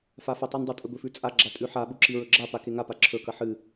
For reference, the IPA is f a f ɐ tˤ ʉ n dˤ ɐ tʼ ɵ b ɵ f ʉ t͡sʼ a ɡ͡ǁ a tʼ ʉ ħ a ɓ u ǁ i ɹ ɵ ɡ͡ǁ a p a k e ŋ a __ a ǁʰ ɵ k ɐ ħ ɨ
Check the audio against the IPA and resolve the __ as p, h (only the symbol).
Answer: p